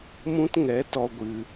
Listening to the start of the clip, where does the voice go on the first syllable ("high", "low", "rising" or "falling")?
high